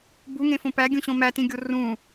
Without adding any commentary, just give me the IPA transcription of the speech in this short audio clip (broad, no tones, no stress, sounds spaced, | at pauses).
b u ŋ ẽ f õ p æ ɡʲ ũ ɕ õ m æ t ĩ ɡʲ o r ũ